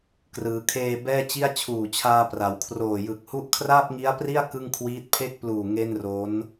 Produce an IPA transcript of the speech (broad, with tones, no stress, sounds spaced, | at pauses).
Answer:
k r ɯː˩˦ kʰ eː˧ b ɛː˥˩ t͡ɕ i˥˩ a̯ t͡ɕʰ uː˨˩ t͡ɕʰ aː˧ p r a˩˦ w kʰ r oː˨˩ j ɯ˨˩ k̚ h u˦˥ ʔ kʰ r aː˥˩ p̚ ŋ i˦˥ a̯ p r i˥˩ a̯ k ɯ˥˩ ŋ kʰ w iː˦˥ t̚ pʰ e˦˥ k̚ p l uː˨˩ ŋ e˥˩ n r o˦˥ n